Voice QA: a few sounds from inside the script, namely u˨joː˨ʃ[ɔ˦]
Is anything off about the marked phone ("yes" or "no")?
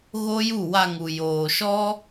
no